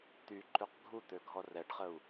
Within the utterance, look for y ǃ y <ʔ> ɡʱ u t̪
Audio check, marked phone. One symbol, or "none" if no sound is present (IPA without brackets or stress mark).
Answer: q